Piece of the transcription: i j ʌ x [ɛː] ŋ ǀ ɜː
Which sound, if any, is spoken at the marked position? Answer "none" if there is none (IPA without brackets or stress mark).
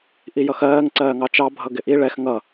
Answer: ɜː